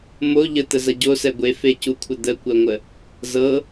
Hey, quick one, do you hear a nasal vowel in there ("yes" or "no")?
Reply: no